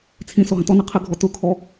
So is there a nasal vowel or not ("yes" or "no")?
yes